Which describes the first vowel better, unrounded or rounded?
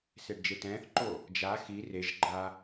unrounded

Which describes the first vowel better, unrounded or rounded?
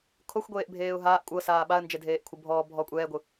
rounded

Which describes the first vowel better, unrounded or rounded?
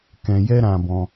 unrounded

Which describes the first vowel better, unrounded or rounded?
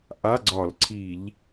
unrounded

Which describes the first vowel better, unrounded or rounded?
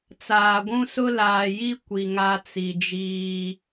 unrounded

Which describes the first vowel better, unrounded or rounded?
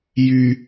rounded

